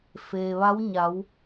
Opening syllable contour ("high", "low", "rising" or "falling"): low